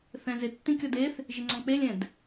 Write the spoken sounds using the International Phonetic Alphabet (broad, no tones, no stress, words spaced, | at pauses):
θɛ̃zɪtːĩ kʲɔdeθ | ʒɪŋ͡ǀɔ̃k͡pelʲɛ̃d